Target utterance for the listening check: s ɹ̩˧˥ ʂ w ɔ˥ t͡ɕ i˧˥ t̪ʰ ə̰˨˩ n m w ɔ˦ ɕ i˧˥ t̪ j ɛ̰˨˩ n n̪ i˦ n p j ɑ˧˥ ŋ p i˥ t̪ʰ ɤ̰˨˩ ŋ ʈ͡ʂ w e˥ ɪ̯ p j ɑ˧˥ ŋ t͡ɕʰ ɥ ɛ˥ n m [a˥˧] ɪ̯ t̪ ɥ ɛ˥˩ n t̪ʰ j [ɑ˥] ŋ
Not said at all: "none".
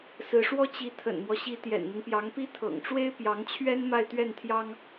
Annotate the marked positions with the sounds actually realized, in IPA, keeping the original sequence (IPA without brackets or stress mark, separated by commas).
a˥˧, ɑ˥